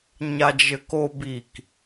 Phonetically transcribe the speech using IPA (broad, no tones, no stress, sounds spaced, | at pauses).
ɲ a d͡ʒ ɘ k o b i k